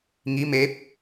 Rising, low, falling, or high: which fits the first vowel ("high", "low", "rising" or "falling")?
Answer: rising